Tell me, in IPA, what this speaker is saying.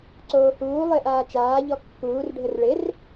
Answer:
ǀ oː h uː lˠ ɪː ʔ aː t͡ʃ aː ʎ ɔ kː uː r ɖʱ ɘ r ɭ ɪ r

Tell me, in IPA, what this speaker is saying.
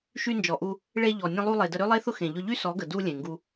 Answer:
ʃ y˧ n d͡ʒ ɔ˨ ʔ u˧ | ɭ e˧ ʎ ɔ˨ nʲ ə̃˧ lˠ u˧ lˠ e˨ d ə˧ ɾ ø˦ lˠ e˦ θ ʊ˦ x ẽ˨ ʎ ʊ˧ ʎ y˦ s ɔ˨˦ ɡ ə˨ d u˧ lʲ ẽ˨ ŋ ɡ u˧

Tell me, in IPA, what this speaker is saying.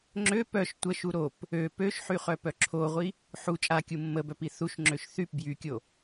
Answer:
ŋ͡ǁ ø p œ ʃ tʷ ə ʃ u ɾ o p | ø p ø ʃ ħ y χ œ p œ ǁʰ o ʁʷ i | ħ u t͡ʃʼ a kʲ u mː ə b œ p i θ u ʃ ŋ͡ǁ ø ʃ θ y p b j y kʲ o

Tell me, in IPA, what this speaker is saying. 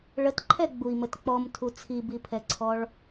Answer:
ɭ ə t ǃʰ ɛ ɡ͡b u i̯ m ə t k͡p ɔ m tʰ u t͡sʰ i b i pʰ ɛ ǀʰ ɔ ɭ

